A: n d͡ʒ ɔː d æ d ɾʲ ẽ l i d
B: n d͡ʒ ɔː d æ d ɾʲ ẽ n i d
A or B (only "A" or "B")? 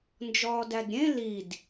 A